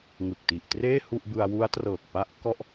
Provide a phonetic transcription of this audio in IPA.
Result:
ŋ ɯ˨˩ k̚ t i˨˩ ʔ t r eː˥˩ h u˥˩ ʔ b ɯ˧ a̯ w u˦˥ a̯ t r ɤː˨˩ k̚ p a˥˩ ʔ k ɔ˥˩ ʔ

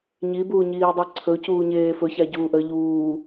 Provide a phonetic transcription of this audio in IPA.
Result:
ɲ i b uː ɲ iː dˤ i ǀʰ ɵ c uː ɲ eː f ɵ ç a ɟ uː ʔ ə ʎ uː

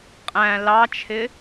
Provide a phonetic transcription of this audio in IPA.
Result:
qʼ æ̃ l ɑ t͡ʃʰ ɪ

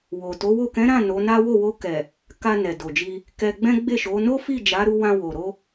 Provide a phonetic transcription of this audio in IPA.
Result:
w o˨ t o˨˦ w o˦˨ k ɛ̃˨˦ ɾ ã˦˨ n o˨˦ n a˦ w o˦˨ w o˧ k ɛ˨ | k a˧ n ɛ˨ d o˨ d͡ʒ i˧ | k ɛ˧ ɡ͡b ɛ̃˦ ɡ͡b e˦˨ ʃ o˨˦ n o˦ f i˦˨ d͡ʒ a˨˦ ɾ u˧ w ã˧ w o˨ ɾ o˧

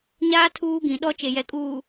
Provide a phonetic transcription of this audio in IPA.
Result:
ɲ aː˦ tʰ uː˦ ɡ ĩ˨ ɗ ɔ˦ t͡ʃ e˨ j ɛ˨ kʼ uː˨

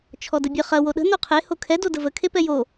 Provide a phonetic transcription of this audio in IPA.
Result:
t͡ʃʰ ɔ d ə bʲ ə χ ɐ w o ɗ ə̤ n o qʰ e h o kʰ ɛ d o d ə v ə kʰ e p ɛ j o

